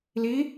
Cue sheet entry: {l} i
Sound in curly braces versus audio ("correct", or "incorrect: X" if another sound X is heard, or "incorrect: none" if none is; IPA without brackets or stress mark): correct